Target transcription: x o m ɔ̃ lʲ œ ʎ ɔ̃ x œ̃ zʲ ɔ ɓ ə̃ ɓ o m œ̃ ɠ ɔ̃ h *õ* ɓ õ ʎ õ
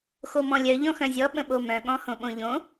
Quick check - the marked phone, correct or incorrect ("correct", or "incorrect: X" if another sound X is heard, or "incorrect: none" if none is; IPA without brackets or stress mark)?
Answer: correct